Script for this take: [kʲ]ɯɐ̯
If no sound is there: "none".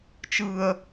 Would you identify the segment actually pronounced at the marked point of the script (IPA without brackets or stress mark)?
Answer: t͡ʃ